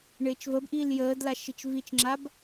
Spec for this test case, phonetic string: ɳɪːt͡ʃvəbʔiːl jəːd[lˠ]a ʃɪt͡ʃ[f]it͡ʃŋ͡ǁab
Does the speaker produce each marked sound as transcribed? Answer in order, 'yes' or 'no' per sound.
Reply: no, no

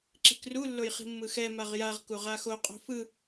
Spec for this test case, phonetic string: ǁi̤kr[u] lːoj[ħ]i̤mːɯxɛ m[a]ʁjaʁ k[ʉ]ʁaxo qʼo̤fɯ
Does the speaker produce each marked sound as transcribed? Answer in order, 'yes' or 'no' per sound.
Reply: yes, no, yes, no

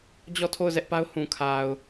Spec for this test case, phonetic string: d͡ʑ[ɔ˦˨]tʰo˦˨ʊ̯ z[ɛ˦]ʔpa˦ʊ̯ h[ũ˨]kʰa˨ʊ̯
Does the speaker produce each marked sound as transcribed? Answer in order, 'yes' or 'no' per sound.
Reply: yes, yes, yes

